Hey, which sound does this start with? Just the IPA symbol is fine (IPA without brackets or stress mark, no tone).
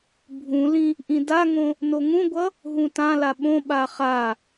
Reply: bʱ